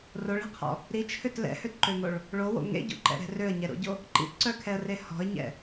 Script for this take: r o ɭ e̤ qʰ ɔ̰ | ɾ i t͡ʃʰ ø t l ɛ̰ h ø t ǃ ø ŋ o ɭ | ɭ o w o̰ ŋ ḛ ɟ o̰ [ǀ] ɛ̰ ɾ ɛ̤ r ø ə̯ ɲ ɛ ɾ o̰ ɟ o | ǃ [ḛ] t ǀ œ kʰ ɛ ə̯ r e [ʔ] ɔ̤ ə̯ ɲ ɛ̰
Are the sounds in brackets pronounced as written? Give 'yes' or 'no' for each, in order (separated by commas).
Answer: no, no, no